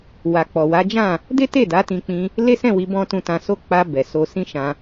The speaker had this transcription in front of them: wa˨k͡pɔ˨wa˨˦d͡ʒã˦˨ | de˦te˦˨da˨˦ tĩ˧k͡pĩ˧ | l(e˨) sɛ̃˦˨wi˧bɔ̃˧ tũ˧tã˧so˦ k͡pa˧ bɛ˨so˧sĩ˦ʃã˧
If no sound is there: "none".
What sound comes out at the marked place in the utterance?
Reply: e˦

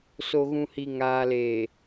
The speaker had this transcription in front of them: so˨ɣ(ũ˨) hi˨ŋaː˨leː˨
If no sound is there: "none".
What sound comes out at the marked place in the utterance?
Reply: ũ˨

